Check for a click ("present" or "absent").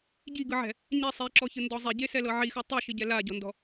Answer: present